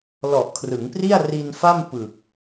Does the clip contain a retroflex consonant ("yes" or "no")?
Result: no